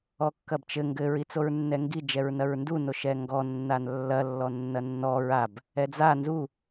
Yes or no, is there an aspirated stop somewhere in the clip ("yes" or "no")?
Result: no